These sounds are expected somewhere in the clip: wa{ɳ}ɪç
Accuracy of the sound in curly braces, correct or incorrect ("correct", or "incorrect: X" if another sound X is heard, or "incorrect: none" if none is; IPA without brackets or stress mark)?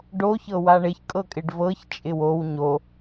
correct